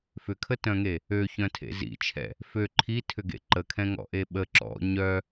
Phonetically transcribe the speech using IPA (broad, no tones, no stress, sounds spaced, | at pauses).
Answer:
f ʏ kʰ ə t œ̃ ŋ e | ø ç œ̃ tʰ ḛ z ḭ t͡ʃʰ ɛ̰ | f ø ǃʰ i tʰ ʏ ɡ ḛ ǃ ə kʰ ɛ̃ ŋ ɔ̰ ʔ e ɓ ə ǁ ɔ̰ ɲ œ